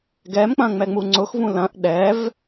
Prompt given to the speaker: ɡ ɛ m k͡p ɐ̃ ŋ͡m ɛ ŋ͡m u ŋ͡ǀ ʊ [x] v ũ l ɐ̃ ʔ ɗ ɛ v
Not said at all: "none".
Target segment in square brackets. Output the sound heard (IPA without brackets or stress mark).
x